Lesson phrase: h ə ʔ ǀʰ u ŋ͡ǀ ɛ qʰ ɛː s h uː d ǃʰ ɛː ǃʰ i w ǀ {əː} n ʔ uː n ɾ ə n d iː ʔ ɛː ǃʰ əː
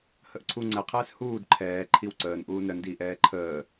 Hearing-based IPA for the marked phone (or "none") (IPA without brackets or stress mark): əː